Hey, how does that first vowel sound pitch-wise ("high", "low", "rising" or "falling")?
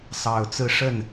low